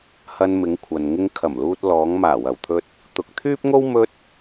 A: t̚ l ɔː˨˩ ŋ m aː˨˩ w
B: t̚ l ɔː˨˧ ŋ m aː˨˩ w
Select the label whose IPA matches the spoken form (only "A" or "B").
B